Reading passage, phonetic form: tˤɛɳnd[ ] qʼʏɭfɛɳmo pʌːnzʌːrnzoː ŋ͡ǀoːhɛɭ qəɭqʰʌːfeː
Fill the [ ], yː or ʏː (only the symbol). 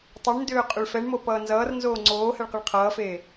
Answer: ʏː